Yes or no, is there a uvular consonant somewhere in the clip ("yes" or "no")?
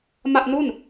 no